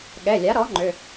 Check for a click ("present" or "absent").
present